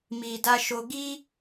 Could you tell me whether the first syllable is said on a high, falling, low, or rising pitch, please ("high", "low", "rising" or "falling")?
low